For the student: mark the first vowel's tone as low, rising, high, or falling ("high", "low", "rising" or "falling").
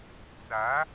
rising